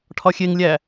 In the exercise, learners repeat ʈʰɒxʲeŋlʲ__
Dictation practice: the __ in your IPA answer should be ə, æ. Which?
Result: æ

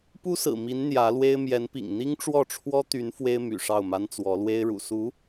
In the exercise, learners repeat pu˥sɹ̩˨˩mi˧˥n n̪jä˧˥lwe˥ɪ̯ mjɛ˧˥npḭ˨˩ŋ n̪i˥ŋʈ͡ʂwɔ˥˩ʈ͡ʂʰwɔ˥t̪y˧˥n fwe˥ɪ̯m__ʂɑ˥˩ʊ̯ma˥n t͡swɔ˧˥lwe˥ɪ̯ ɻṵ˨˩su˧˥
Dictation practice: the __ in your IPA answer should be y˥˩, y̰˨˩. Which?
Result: y̰˨˩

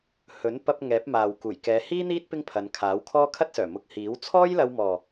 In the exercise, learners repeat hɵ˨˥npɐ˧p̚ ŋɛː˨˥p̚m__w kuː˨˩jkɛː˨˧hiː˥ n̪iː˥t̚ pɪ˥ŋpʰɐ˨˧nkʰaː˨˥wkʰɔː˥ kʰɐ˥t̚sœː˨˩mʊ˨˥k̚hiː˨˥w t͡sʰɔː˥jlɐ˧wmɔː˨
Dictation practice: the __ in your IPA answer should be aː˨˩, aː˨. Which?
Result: aː˨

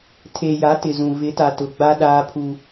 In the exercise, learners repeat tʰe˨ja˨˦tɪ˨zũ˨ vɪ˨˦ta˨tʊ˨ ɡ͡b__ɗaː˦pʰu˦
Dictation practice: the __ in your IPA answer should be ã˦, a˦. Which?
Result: a˦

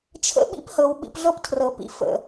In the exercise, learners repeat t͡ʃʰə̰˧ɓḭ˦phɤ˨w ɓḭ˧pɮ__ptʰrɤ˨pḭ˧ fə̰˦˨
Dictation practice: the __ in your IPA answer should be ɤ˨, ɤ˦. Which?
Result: ɤ˦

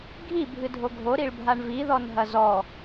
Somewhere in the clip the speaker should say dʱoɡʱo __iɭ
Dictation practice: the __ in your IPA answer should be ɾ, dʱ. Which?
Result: ɾ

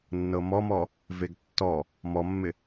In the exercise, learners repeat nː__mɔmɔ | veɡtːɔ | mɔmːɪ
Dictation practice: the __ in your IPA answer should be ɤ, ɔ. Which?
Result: ɤ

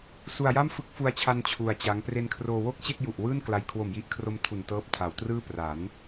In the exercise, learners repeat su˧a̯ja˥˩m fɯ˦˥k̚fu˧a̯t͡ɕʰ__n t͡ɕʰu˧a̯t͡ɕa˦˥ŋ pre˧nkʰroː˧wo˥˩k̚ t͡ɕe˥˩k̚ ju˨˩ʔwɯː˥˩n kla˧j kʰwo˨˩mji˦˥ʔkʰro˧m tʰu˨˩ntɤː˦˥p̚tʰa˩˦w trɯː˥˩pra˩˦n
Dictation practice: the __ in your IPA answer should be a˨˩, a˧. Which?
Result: a˧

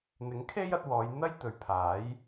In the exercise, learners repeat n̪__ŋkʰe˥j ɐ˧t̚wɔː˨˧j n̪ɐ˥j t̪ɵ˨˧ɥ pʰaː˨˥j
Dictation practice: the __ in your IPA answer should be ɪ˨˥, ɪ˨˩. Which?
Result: ɪ˨˥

